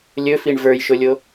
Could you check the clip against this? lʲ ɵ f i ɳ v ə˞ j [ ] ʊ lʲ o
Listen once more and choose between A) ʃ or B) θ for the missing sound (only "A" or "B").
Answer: A